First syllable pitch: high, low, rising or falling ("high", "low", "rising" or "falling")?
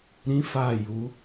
high